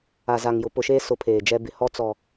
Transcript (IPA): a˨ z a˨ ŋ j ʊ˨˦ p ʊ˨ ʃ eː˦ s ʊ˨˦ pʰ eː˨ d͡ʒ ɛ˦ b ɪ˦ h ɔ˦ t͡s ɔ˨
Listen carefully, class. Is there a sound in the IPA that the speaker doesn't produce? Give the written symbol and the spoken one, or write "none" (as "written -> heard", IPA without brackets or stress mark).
none